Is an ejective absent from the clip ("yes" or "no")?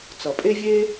no